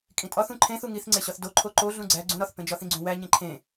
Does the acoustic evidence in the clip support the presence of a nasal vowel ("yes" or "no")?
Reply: yes